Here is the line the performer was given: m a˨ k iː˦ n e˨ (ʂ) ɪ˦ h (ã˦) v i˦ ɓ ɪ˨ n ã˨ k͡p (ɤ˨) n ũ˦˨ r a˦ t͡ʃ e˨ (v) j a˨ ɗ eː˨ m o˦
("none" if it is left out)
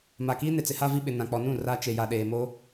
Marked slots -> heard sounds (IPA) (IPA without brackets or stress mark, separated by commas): t͡s, a˦, ɔ˨, none